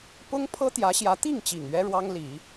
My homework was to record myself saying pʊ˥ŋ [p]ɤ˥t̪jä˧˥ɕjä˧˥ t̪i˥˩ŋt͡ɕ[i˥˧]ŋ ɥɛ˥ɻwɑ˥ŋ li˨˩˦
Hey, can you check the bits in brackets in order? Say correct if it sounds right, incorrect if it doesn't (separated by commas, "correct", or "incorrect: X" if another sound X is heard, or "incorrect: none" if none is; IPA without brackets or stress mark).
incorrect: pʰ, incorrect: i˨˩